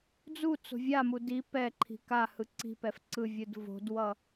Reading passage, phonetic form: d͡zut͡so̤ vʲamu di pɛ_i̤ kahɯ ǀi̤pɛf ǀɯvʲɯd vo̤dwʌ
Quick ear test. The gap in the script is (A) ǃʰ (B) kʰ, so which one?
A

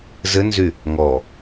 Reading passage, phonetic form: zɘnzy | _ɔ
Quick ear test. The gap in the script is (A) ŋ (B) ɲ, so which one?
A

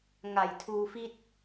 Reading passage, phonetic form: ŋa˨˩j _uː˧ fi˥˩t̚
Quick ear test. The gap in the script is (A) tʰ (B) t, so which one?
A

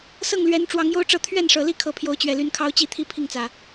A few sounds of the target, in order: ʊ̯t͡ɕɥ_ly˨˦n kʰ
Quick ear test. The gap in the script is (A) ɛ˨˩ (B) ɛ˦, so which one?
A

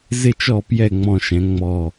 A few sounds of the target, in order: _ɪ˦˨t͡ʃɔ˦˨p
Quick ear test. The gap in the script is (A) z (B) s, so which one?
A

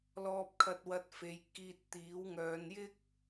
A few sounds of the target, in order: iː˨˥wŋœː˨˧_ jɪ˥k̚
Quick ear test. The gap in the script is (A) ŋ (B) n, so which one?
B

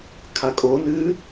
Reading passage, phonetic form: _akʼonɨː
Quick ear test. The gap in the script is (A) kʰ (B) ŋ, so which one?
A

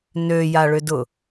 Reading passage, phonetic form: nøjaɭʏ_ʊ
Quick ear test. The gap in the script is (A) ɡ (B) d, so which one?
B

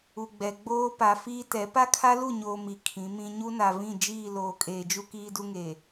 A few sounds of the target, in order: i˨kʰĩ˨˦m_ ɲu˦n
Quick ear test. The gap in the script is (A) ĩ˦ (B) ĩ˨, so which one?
A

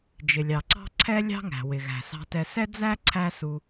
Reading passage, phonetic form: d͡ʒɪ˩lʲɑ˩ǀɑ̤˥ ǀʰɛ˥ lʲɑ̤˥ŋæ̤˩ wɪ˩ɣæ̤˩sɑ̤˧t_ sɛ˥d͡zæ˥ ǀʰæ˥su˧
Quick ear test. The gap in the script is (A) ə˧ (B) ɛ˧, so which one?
B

